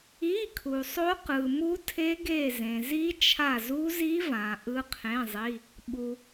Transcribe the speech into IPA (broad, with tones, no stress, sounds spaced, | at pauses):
i˧˥˧ kʰ u˨ sˤ o˦˥ q ɯ˨ m u˦˥ tʰ e˦˥ ɡ e˦˨ z ẽ˨ z i˦˥ t͡ʃʰ a˦˨ z u˦˥ z i˦˥ v ã˨ ʔ ɯ˦˥ qʰ ẽ˧˥˧ zˤ i˧˥˧ | ɓ u˨